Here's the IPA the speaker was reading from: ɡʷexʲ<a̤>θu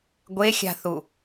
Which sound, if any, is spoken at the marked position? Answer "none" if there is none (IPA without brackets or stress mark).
a̤